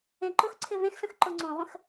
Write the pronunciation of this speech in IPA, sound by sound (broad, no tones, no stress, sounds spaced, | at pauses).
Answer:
ẽ ǃ ʊ x ǀʰ ɪ v ẽ x s ə̃ x ǃ ʊ ŋ͡ǀ õ ʁʷ ə̃ x